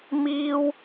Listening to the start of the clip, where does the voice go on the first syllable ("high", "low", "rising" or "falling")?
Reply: high